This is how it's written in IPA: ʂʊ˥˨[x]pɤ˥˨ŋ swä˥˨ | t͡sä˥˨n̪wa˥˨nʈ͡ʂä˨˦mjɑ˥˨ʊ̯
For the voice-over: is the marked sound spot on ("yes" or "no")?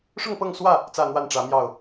no